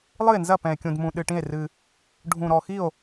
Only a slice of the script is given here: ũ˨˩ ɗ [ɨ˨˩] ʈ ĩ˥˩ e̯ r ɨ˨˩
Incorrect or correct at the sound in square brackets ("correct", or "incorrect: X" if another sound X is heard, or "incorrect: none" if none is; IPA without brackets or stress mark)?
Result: correct